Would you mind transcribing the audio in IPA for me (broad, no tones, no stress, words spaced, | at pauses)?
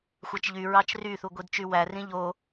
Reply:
xʷæt͡ʃʎy ɹɑt͡ʃryθu ɡʷidt͡ʃywærĩ ʎo